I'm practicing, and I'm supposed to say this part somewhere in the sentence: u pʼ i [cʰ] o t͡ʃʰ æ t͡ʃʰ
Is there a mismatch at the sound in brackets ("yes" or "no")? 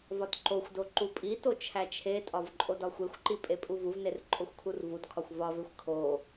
yes